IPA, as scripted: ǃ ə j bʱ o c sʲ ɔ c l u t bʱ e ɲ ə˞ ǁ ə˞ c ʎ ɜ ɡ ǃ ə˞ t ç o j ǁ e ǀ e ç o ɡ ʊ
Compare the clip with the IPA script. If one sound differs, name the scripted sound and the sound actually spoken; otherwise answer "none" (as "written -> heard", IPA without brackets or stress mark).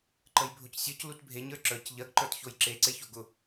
none